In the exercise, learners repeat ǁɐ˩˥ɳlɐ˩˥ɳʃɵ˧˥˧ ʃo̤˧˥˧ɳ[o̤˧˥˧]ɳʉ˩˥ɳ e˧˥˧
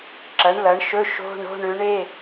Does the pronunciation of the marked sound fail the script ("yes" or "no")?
no